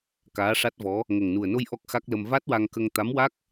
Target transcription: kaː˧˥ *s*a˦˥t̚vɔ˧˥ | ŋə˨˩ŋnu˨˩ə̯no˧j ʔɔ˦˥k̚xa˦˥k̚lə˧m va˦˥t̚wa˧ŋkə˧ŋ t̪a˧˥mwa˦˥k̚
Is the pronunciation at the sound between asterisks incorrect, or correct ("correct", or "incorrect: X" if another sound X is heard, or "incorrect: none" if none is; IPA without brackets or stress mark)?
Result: incorrect: ʂ